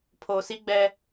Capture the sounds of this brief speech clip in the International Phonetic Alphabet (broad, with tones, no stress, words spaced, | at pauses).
pʰoː˨si˦ɡ͡bɛ˦